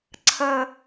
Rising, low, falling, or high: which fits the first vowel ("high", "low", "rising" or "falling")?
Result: low